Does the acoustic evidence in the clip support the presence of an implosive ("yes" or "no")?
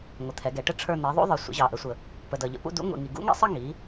no